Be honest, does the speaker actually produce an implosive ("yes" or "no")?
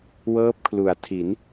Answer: no